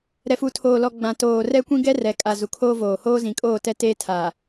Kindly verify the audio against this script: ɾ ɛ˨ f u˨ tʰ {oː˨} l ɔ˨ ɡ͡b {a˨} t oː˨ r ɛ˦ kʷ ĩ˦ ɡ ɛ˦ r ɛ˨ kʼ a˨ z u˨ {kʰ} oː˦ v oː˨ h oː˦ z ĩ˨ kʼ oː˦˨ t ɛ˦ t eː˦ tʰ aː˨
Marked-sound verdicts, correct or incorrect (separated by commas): correct, incorrect, correct